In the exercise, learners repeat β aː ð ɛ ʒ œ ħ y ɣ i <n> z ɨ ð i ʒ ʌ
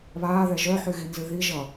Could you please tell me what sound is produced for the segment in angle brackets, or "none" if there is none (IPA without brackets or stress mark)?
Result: n